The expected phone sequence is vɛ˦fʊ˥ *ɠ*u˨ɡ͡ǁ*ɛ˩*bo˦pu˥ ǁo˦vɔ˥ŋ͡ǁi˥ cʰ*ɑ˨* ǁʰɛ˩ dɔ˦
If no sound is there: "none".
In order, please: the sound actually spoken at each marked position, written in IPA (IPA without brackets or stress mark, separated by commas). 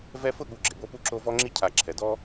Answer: ɠ, ɪ˩, a˨